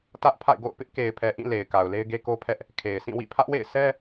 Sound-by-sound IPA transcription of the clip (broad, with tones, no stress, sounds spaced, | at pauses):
t ä˦ ʔ pʰ a̰˦˨ ɪ̯ ɡ o̰˦˨ ʊ̯ p ɪ˦ ʔ k e˨ ɪ̯ pʰ ɛ˨ ʔ ĩ˦˨ l e˨ ɪ̯ k a˨ ʊ̯ l e˦ ɪ̯ ɡ e˦ k o˦ pʰ ɛ˦ ʔ | kʰ e˨ ɪ̯ sʰ ĩ˦˨ w ḭ˦˨ pʰ ä˦ ʔ w ḛ˦˨ ɪ̯ s ɛ˦